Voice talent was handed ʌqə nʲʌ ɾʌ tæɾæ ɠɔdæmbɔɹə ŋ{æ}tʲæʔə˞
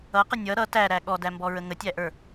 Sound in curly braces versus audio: incorrect: ə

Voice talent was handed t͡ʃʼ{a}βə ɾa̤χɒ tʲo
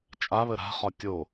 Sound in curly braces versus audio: correct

